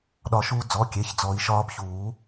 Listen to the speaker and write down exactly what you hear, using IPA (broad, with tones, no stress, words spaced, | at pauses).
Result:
ɗɒ˨˩˦ ʃuː˩˧˩ d͡zɔ˩˧˩kʲe˩˧˩ç d͡zɔ˨˩˦i̯ʃɒː˩˧˩bçuː˨˩˦